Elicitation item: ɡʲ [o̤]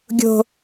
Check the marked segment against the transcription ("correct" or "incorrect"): correct